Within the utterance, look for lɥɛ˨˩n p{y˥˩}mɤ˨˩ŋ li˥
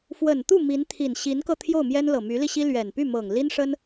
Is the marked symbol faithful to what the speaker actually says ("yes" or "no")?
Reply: yes